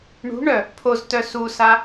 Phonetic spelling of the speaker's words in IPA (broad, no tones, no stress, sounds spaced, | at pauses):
ɳ ṳ ɳ œ | pʰ o z t œ s u s a